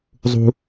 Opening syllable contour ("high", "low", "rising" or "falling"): high